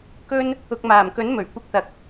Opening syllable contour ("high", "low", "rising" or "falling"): high